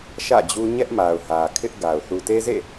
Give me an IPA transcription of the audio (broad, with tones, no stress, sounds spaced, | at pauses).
ʃ ä̰˦˨ d͡ʑ u˦ ɲ ɛ˦ ʔ m a˨ ʊ̯ h ä˨ kʰ ɪ˦ ʔ ɡ a˨ ʊ̯ θ u˨ t e˦ z ḛ˦˨